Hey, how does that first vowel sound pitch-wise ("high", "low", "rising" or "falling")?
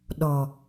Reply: low